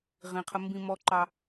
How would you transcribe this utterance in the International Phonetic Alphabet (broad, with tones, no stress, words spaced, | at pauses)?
ʁĩ˨qʰə˦mbĩ˦ mɔ˦ǃɑ˦